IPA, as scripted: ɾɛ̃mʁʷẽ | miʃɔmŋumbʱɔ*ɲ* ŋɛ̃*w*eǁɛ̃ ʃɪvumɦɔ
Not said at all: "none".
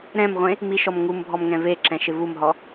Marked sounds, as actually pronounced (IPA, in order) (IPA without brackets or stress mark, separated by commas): m, v